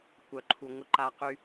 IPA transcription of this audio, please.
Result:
kʷ œ˦ ǃʰ u˦ ŋʷ ə˦ ǃ a˦ q y˦

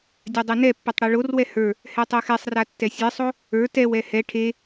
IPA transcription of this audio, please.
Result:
dʲ a dˤ e n ɛ pː ɛ tˤ ɽ ɛ ɭ o r w ɛ h ə˞ | h ɛ tˤ e x ɛ sˤ r a tː ɛ sʲ ɛ sˤ o | ə˞ t ɛ w ɛ h ɛ ʈʰ e

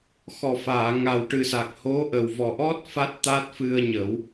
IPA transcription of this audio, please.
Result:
x ɔ˨˩ f aː˨˩˨ ŋ a˨˩ w ʈ ɨ˨˩ s a˨˩ k̚ h o˧˥ ʔ ə˨˩ w v ɔ˨˩ ʔ ɔ˦˥ t̚ f a˦˥ t̚ t̪ a˦˥ t̚ f ɨ˧ ə̯ ɲ ə˨˩˦ w

